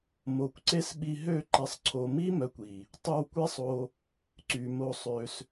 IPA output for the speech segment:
m o˨˦ kʷ ǀ e˦ s ɓ i˧ ɦ ø˦˨ ǃ e˧ sˤ ǀʰ o˧ m i˦ m œ˨˦ kʷ i˨ | tˤ ø˧ w kʷ e˦ sˤ o˧ | ǀ y˨ m o˧ sˤ ø˧ s

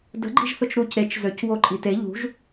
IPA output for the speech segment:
d ə̤ ɡ͡ǃ i̤ ʒ θ ʊ t͡ʃ ɾ u c ɾ e t͡ʃ z ø c w o ǃʼ i t e ʎ ṳ ʒ

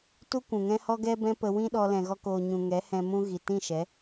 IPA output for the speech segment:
t u˦ kʷ ũ˨ ŋ ɛ̃˦ h ɔ˦ ɡ ɛ˦ b ɛ̃˦ p ə˧ w ĩ˦ ɗ ɔ˧ l ɛ̃˨ ɣ ɔ˧ k oː˨ ɲ ũ˨ ŋ ɛ˨˦ h ɛ̃˧ m ũ˦ ɣ i˨ t ĩ˦˨ ʃ ɛ˨˦

